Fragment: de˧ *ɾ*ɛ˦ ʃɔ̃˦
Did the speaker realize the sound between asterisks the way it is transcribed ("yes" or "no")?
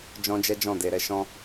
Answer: yes